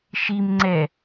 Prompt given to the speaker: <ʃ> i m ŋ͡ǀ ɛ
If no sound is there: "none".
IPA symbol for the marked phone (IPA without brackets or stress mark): ʃ